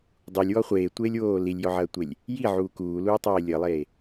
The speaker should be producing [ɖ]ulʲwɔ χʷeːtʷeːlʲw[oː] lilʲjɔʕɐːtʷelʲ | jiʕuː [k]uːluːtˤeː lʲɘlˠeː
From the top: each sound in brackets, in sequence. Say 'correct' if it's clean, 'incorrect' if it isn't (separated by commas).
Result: incorrect, correct, correct